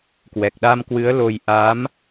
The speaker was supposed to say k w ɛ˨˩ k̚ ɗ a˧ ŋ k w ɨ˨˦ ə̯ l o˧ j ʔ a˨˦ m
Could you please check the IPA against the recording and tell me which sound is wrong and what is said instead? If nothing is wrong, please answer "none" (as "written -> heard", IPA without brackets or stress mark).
ŋ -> m